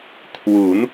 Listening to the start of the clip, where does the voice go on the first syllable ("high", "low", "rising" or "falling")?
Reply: rising